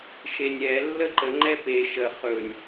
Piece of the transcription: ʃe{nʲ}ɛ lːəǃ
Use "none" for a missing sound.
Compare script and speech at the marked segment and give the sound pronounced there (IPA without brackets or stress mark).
nʲ